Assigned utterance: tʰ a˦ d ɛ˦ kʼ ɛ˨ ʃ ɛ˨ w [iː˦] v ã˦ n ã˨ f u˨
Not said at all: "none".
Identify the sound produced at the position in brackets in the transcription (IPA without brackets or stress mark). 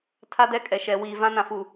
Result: iː˨